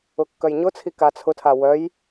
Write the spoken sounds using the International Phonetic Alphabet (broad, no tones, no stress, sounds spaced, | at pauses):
ʊ kː œ j ɲ ʊ t͡sʰ i k a t͡sʰ ʊ tʰ a w œ j